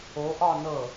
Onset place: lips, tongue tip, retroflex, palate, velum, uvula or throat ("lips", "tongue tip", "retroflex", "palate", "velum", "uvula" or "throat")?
throat